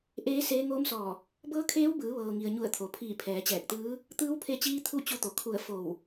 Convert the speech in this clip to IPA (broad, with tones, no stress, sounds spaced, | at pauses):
ʔ eː˧˥ s eː˧˥ ŋ oː˧˥ m s ɔː˧˩ | b ɤː˧˥ kʰ eː˧˥ w b ɯː˩˧ ʋ ɤː˩ ŋ i˩ ə̯ ɲ u˧˩ ə̯ t̪ʰ o˩ pʰ iː˧˩ pʰ ɛː˩˧ t͡ɕ ɛː˧˩ k̚ t̪ ɯː˧˥ | t̪ ɯː˧˥ w pʰ e˧ t͡ɕ iː˧ t̪ʰ u˥˨ t͡ɕ u˧˥ t̪ o˩ kʰ u˧˩ ə̯ f o˧˩ w